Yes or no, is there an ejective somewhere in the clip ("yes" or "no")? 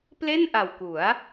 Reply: no